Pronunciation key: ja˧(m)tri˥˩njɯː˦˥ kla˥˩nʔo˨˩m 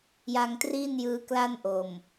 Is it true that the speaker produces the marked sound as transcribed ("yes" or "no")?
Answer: no